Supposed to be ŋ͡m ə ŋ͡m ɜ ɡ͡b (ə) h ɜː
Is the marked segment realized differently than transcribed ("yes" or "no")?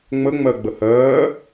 no